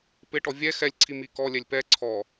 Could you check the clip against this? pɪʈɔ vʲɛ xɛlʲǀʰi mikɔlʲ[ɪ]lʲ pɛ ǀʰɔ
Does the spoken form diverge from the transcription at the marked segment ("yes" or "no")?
yes